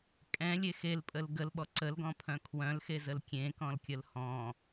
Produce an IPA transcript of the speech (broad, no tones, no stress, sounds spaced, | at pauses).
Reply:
kʼ ɛ̃ lʲ e x e l pʼ ə l ɡ ə l ɓ ɔ ǀ ə l ɡ ɔ̃ pʰ œ̃ kʰ w œ̃ l x e z ə l kʲ ẽ k ɔ̃ l kʲ ə l h ɔ̃